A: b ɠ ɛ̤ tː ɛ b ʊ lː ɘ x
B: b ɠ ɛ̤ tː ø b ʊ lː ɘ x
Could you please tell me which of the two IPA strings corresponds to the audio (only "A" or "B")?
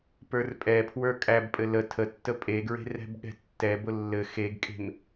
A